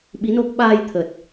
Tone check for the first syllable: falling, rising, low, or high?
rising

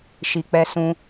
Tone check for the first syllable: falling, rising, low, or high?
low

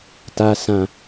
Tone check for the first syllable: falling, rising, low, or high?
low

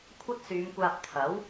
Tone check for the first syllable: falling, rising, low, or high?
high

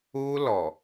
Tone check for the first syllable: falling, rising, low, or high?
high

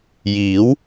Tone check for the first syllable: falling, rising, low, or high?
rising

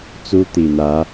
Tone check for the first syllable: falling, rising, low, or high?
high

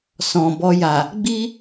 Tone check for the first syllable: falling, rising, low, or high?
low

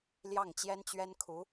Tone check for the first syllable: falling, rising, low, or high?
falling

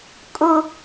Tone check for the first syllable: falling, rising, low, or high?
high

